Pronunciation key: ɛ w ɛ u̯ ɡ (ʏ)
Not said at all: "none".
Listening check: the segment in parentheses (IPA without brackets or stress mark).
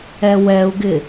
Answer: ɪ